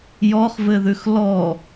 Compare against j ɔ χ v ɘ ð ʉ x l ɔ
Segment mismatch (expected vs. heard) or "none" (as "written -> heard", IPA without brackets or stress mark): none